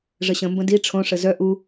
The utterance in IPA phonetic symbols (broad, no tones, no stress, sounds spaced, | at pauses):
ʐ ə ɕ ə̃ m b ə̃ d i ʈ͡ʂʰ õ ʂ ə z œ ʔ u